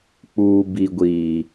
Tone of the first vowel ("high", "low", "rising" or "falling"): high